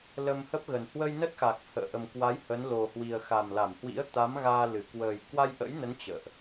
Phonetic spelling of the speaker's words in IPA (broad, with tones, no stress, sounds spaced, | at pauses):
l ə˧ m h ə˦˥ p̚ ɣ ə˨˩ n h w ə˧ j n ə˦˥ t̚ x a˨˩ k̚ h ə̰ː˧˨ ʔ ə˨˩ m k w a˨˦ j h ə˨˦ n l o˨˩ h w i˨˩ ə̯ x a˨˩ m l a˧˩ m h w ḭ˧˥ ə̯ t̪ a˨˦ m ɣ aː˧ l ɨ˧˩ k w əː˨˩ j k w a˧ j ʔ ə̰˧˥ j n ə˨˦ n t͡ɕ ə̰ː˧˨ ʔ